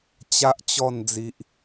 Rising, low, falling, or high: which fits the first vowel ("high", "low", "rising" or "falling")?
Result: high